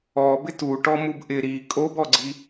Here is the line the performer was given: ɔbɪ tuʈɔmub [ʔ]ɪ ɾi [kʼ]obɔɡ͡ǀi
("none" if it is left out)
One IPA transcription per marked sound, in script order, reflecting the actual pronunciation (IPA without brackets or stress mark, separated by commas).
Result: ʔ, kʼ